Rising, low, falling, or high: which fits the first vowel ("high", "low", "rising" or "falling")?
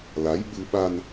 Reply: rising